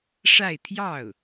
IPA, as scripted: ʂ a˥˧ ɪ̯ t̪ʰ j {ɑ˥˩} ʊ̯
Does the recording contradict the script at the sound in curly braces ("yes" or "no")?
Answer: no